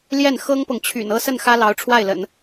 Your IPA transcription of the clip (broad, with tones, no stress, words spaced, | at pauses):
ljɛ˥˩nxɤ˥ŋpɤ˨ŋt͡ɕʰy̰˨˩n ɤ˥˧sə˥˩n xä˥lɑ˧˥ʊ̯ʈ͡ʂʰwa˥˩ɪ̯lə̰˨˩˦n